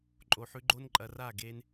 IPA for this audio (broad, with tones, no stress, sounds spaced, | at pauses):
ǃʼ o˨ ħ ʉ˦ ɡ͡ǃ o˦ n ǃʼ ɐ˨˦ r a˦˨ ɡ e˦ n